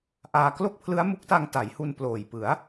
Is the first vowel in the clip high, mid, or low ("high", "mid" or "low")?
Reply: low